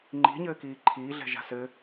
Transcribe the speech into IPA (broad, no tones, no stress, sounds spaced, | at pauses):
ŋ͡ǃ i̤ ɲ ɘː k iː ǃʰ iː ɮ ɛ̤ ʒ a̤ s ɘ